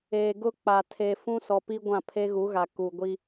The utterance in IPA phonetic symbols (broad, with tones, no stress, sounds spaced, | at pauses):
eː˨ ɡ ʊ˦ k͡p a˨ tʰ eː˨ f ũ˦ s ɔ˨ p i˦ ɡʷ ã˦˨ pʰ e˦ ɣ u˨˦ ɣ a˨ k u˨ ɡʷ i˦